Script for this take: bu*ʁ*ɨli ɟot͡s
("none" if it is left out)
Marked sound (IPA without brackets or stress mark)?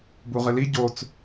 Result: ʁ